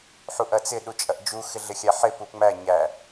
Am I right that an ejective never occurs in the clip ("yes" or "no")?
no